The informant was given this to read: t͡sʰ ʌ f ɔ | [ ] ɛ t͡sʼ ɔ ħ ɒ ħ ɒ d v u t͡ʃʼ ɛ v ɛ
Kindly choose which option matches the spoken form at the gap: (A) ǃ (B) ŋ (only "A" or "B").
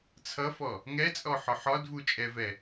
B